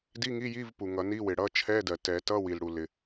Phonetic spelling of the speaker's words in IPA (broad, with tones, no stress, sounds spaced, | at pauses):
d i˧˥˧ ŋ i˧˥˧ j i˧˥˧ v p u˩ ŋ ʌ˨˩˦ n i˧˥˧ w ɪ˩ ɽ ʌ˧˥˧ t͡ʃʰ ɛ˧˥˧ d ɜ˩ t ɛ˨˩˦ t ʌ˧˥˧ w i˩ l ɽ u˩ l ɪ˩